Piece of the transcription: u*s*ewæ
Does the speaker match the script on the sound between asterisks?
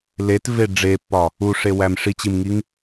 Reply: no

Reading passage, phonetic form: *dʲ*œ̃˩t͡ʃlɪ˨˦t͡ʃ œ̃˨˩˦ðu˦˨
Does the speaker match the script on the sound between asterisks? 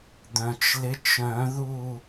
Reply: no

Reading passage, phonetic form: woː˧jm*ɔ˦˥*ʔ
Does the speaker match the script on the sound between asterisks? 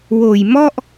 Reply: no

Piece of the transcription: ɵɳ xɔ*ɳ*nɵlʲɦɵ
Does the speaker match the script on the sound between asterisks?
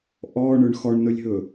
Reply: yes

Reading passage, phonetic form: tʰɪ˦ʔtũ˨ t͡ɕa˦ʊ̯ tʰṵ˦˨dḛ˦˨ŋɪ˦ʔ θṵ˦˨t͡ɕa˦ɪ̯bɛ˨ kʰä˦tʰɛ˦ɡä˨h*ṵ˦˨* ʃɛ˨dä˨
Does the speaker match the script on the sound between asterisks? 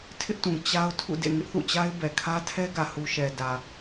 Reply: no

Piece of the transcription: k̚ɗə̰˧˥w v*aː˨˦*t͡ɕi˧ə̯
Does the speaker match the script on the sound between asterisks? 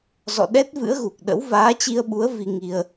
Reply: yes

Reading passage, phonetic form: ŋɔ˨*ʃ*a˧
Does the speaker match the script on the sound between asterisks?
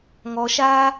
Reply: yes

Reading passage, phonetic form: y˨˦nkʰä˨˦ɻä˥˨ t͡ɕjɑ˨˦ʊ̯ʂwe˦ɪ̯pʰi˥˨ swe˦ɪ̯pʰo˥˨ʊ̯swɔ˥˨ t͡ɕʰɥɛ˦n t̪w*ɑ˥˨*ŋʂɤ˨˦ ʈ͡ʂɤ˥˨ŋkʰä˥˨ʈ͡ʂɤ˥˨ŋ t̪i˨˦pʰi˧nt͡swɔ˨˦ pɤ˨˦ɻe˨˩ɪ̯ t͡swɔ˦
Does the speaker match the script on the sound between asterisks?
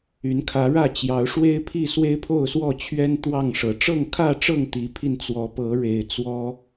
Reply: yes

